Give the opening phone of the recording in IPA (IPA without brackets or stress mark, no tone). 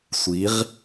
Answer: sʷ